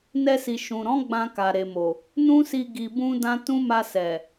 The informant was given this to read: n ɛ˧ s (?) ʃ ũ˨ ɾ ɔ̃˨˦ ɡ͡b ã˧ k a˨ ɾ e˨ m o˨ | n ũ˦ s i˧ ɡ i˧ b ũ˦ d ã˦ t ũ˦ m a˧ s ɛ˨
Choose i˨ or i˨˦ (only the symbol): i˨